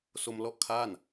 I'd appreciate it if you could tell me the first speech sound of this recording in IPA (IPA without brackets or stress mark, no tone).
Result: s